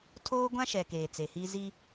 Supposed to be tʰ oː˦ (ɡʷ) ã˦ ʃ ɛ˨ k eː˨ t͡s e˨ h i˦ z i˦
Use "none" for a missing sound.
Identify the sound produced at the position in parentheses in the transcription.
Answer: ɡʷ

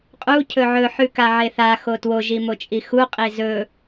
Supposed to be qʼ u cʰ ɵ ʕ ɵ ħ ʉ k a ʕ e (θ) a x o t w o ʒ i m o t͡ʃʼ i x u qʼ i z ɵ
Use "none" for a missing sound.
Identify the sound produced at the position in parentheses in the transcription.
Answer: θ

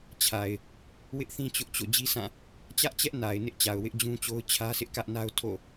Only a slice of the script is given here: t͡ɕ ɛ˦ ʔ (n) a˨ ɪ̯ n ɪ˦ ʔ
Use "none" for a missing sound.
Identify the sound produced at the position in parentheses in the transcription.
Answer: n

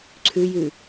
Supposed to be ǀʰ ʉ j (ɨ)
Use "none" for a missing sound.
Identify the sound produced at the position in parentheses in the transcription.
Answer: ʉ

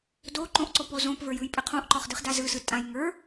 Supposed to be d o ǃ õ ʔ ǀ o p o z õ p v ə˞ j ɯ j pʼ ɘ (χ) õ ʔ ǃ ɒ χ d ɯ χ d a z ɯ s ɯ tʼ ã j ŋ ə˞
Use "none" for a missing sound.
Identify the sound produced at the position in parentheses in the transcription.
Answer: qʰ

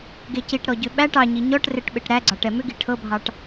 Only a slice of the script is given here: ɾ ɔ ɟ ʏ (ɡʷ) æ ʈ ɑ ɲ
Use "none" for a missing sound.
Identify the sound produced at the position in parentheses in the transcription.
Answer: ɓ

